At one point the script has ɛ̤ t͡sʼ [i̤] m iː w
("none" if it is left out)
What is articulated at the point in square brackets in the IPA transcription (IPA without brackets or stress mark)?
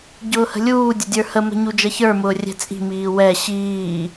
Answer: i̤